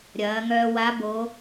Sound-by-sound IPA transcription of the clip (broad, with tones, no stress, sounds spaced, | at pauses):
ɾʲ ɐː˩˧ ŋ œː˧ w a˧˥ b oː˧˥